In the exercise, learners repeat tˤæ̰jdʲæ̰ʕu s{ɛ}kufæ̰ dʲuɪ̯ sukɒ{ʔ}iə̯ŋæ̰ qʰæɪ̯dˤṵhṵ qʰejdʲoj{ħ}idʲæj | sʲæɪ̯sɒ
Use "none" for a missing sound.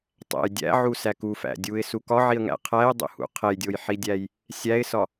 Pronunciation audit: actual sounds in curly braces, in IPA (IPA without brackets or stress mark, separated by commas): æ, ʕ, ħ